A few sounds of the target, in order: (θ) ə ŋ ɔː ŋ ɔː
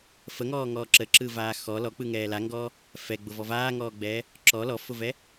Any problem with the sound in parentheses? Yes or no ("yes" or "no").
yes